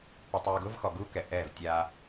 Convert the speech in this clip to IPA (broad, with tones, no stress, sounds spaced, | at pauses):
p ʊ˨ tˤ uː˨ ɡ ʊː˦ v x ɔ˨ ɡ uː˦ k ɛ˨ ʔ ɛː˦˨ v tʲ aː˦